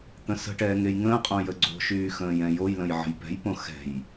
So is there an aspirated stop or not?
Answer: no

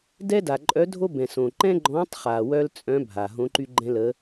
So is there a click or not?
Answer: yes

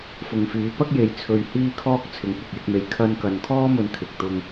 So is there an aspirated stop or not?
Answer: yes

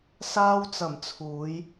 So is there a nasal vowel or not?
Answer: no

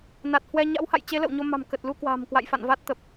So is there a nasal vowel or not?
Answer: no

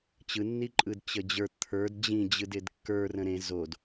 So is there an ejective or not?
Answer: yes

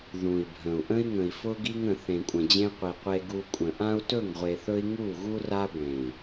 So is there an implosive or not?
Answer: no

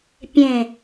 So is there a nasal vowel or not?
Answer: yes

